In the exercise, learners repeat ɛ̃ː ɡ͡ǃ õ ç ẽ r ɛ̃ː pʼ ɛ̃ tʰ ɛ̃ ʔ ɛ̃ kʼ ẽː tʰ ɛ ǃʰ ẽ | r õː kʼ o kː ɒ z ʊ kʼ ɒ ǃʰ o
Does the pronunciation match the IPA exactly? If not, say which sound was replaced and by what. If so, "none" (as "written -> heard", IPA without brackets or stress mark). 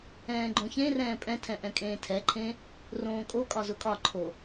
kː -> kʼ